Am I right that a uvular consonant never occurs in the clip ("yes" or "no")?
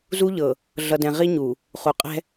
no